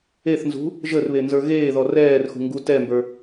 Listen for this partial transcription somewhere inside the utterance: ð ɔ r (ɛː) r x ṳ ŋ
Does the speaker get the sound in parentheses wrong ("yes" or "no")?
no